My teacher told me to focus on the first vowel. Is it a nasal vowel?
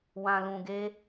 yes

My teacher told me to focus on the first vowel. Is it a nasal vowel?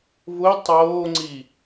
no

